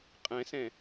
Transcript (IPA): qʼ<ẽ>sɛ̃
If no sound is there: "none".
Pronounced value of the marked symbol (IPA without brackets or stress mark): ɛ̃